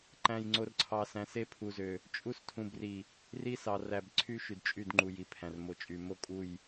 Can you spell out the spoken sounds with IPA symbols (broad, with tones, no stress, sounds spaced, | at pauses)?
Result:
ǃ æ̃˨ j ŋ͡ǀ o˨ r ǀʰ ɑ˨ s æ̃˨ s e˦ pʰ u˨ z ø˨ | t͡ʃʼ u˦ s tʰ ũ˨ b r i˨ | r i˦ s ɑ˨ r æ˨ b ǀʰ y˦ ʃ y˨ d t͡ʃʼ y˦˨ d ŋ͡ǃ u˨ j i˨ pʰ æ̃˨ r m o˨ t͡ʃʼ y˨ m o˦ kʼ u˦˨ j